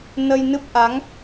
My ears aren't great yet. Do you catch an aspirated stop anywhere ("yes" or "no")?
no